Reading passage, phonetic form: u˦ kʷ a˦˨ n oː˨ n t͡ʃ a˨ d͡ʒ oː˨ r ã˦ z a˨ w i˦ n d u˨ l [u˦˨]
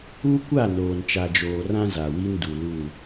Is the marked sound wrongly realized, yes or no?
no